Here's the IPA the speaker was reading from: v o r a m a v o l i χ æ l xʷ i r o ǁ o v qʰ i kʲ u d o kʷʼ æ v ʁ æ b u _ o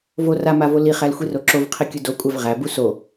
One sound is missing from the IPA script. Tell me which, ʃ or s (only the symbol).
s